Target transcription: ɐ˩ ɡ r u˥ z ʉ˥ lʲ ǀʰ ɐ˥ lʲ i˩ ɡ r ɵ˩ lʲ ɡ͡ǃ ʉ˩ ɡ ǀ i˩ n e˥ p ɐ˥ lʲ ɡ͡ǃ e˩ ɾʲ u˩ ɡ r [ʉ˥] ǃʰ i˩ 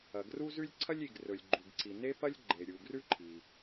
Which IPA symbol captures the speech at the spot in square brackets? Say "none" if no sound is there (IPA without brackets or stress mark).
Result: ʉ˥